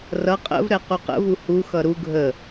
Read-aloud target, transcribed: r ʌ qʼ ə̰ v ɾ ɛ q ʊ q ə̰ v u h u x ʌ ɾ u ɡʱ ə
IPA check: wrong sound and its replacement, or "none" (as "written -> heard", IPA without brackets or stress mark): ʊ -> u